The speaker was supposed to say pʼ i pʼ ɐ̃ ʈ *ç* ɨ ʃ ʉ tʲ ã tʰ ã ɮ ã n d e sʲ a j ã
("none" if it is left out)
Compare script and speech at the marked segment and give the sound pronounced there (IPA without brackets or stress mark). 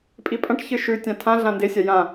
ç